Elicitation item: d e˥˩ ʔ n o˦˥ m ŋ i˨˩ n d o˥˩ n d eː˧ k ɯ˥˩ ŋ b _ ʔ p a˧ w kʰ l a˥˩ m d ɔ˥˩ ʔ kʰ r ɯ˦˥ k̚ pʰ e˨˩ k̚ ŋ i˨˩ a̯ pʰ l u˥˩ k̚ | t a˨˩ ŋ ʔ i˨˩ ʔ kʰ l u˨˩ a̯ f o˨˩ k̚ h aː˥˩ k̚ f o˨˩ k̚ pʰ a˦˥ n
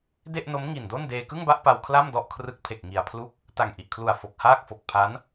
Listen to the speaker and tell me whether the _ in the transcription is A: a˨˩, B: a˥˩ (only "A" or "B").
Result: B